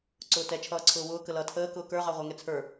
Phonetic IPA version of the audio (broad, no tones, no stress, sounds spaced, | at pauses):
ǀ ʊː t ɛ t͡ʃʰ ʌː ǀʰ ʊː w ʊː k ə l ʌ tʰ əː k ʊː k ə˞ ʁ ɑ ʁʷ æ ŋ ɛ t͡sʰ ə˞